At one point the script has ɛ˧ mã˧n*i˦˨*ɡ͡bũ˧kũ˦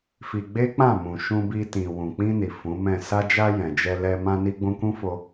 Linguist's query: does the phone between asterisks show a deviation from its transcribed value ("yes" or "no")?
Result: yes